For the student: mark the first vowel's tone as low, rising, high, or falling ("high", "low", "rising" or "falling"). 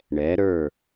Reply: rising